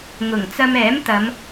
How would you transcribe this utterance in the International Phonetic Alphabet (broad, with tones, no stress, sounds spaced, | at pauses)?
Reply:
ŋ ʊ˨˩ ŋ t͡s ɐ˧ m ɛː˨˥ m t̪ ɐ˨˧ m